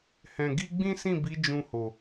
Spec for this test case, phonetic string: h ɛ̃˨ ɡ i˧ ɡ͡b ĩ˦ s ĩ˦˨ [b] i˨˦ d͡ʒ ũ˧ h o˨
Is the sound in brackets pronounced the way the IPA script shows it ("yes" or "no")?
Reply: yes